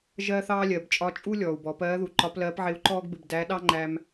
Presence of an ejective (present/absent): present